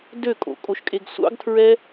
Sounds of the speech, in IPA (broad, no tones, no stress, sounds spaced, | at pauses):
d ø kʼ o̰ kʼ o ʃ kʼ e ɡ sʷ ɑ̰ ɡ tʰ ɹ ɛ